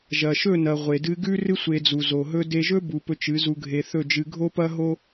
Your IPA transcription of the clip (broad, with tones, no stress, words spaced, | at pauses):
ʒɐ˨ʃɵ˦˨nɐ˨ ʁʷe˨dɨ˧ ɡʉ˦rɨ˦sʷe˧d͡zu˨ zo˨ ɦɵ˧de˧ʒɵ˦ bu˨pɵ˧ t͡ʃɨ˨˦zu˧ɡʱe˧ θɵ˦˨d͡ʒɨ˧ ɡʱo˦pɐ˦ɦo˦